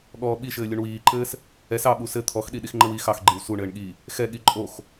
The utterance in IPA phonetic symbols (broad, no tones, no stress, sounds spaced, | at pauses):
ɠ ɔː ɓ i ʃ ɘː lʲ u ɳ w iː ǃ ɘː s | ɛ s ɑ ɓ u s ɘ t̪ʰ ɔ x ɗ i ɗ i x ŋ͡ǃ ɘ w i x ɑ x ɡ͡ǃ i w s u ɳ ɘː ɳ ɠ i | x ɛ ɠ i ǃʼ o x